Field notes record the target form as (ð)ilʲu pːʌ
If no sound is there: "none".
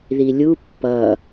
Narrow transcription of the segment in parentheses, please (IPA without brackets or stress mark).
ð